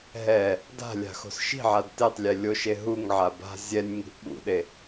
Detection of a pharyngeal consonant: present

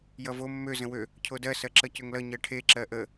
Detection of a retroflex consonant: present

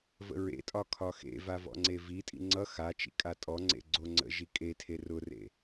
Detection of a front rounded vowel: absent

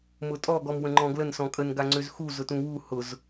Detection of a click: present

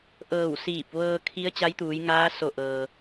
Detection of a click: absent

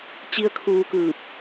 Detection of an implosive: absent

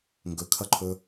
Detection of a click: present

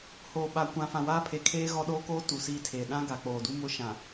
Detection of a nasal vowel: present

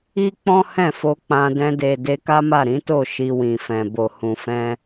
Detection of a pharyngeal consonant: absent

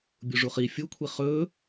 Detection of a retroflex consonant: present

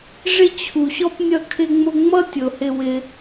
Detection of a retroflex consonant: present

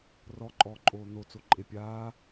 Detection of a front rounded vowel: absent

